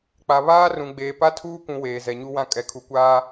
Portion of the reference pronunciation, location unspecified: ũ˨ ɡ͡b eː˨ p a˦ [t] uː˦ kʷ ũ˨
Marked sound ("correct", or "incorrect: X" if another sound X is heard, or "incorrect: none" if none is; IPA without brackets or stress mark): incorrect: tʰ